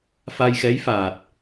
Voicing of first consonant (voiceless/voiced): voiceless